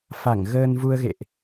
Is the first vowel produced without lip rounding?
yes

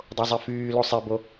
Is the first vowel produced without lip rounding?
no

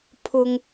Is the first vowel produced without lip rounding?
no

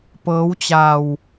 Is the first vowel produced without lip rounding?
yes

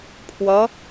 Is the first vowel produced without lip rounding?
yes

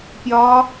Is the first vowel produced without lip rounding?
no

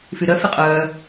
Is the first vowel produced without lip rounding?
no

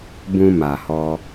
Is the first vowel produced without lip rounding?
no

